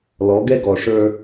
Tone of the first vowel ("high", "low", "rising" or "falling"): rising